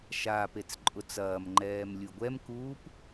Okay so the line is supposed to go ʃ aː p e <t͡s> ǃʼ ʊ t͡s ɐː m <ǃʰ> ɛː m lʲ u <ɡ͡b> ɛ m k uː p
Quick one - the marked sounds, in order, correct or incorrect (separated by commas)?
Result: correct, incorrect, incorrect